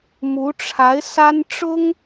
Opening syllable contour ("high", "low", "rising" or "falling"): rising